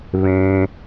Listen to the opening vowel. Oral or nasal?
nasal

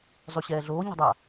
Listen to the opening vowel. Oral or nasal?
oral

